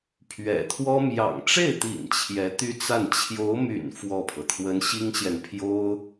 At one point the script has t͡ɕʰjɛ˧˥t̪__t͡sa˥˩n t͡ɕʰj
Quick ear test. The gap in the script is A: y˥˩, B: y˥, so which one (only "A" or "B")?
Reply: B